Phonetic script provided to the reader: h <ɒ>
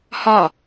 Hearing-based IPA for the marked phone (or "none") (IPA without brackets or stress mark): ɒ